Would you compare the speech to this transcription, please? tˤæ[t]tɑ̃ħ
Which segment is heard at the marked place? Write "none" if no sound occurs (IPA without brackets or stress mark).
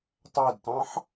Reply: d